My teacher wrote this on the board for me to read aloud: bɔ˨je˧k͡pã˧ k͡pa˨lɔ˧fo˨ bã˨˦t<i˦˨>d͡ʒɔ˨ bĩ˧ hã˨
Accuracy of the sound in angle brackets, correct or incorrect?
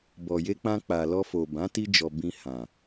incorrect